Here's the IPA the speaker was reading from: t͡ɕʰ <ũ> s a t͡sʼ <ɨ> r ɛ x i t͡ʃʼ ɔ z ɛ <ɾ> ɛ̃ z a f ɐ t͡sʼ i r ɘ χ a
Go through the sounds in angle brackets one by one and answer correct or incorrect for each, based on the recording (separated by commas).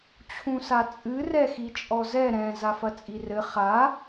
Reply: correct, correct, correct